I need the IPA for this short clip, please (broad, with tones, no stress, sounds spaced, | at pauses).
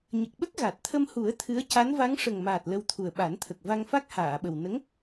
ɲ ə˨˩ k̚ ɓ ə˦˥ k̚ ɣ a˨˩ t̚ t̪ʰ ə˧ m h u˨˩˦ ə̯ t̪ʰ ɨ˧˥ ə̯ c a˧˥ n v a˧˥ ŋ ʂ ə˨˩ ŋ m aː˨˩ t̚ l ə˧ w t̪ʰ u˨˩ ə̯ ɓ a˨˩˦ n t̪ʰ ə˨˩ k̚ v a˧ ŋ f a˦˥ k̚ h aː˨˩˨ ɓ ə˨˩ w n ə˧˥ ŋ